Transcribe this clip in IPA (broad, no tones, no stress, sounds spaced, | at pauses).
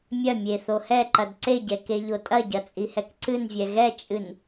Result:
mʲ ɐ mʲ e θ o h ɛ ǃ ɐ d ǀ e ɟ ɛ k e ʎ o tʼ ɐ ɟ ɐ t͡sʼ i h ɛ k ǀ ɨ n vʲ ɛ ɣ ɛ t͡ʃʼ ɨ n